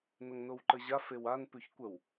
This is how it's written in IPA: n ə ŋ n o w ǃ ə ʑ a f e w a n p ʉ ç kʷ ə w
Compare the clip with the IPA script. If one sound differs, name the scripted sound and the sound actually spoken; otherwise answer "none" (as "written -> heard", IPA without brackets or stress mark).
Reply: none